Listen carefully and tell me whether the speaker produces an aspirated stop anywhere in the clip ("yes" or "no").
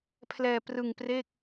yes